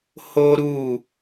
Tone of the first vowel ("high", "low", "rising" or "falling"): high